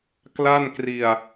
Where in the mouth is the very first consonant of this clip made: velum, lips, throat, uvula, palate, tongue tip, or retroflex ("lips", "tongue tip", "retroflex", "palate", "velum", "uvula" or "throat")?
velum